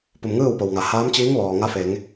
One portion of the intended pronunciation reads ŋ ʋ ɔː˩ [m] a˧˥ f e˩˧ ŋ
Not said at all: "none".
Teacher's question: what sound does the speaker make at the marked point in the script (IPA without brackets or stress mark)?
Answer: ŋ